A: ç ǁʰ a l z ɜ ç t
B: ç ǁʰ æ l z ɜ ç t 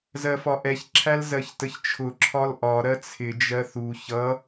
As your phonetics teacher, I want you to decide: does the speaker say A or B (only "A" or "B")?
B